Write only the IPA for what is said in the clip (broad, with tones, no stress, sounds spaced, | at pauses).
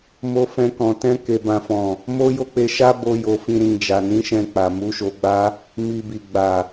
m o˧ f ɛ̃˧ k ɔ̃˨ t ɛ̃˧ k e˨ b ã˨ f ɔ̃˨ | m o˦ j o˦ k͡p e˧ ʃ a˦ b o˦ j o˧ f ĩ˧ ɾ ĩ˧ d͡ʒ a˨ n ĩ˨˦ ʃ ɛ̃˧ k͡p a˨ m u˨˦ ʃ o˧ ɡ͡b a˦ | m i˧ b i˨ ɡ͡b a˨